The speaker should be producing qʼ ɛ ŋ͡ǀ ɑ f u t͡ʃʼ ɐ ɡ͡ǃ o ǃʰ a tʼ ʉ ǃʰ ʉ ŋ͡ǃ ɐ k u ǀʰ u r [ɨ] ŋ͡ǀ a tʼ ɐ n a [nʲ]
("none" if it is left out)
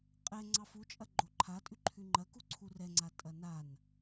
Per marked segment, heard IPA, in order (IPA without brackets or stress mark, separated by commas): ɛ, n